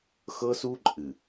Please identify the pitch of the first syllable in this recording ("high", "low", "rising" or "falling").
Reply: high